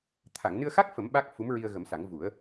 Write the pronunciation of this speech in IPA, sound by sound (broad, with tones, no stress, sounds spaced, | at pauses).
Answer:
t̪ʰ a˨˩˨ ŋ n ɨ˧ ə̯ x a˦˥ k̚ f ə˨˩˦ m ɓ a˦˥ k̚ f u˧˥ m ɹ i˧ ə̯ ɣ ə˨˩˦ m s a˨˩˦ ŋ v u˨˩˦ ə̯